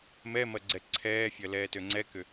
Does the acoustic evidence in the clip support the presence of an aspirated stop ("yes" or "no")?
yes